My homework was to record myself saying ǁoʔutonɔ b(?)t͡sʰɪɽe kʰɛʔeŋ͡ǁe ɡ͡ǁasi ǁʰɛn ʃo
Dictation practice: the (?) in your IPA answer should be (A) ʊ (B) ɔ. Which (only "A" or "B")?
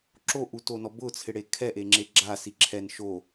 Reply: A